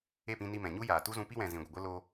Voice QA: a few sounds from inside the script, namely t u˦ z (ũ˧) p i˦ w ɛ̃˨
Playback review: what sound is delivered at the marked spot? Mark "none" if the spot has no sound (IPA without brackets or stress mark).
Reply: ũ˧